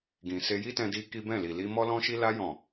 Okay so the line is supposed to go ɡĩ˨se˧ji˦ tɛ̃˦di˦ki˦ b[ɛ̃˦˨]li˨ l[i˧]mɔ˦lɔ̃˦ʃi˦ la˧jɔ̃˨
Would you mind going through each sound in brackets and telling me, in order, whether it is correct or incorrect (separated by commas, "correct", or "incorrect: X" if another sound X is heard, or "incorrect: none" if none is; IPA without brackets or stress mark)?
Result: correct, correct